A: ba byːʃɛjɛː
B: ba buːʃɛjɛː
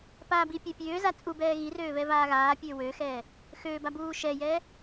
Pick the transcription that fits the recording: B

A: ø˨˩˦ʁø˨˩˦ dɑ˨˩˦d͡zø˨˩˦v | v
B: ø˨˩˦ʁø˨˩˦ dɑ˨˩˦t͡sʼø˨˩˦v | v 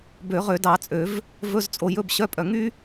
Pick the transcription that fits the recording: B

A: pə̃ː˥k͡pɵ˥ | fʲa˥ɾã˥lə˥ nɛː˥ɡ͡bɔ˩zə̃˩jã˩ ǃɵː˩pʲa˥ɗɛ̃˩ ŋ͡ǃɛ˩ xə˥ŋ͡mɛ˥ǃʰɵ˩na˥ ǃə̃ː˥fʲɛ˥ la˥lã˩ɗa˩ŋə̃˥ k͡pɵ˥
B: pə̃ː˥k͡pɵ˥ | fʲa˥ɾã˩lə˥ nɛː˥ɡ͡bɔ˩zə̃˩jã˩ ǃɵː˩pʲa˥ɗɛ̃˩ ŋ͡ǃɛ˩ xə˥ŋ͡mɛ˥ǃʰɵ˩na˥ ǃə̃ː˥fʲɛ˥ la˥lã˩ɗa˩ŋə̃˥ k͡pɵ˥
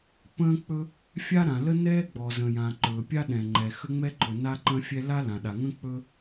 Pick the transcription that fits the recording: B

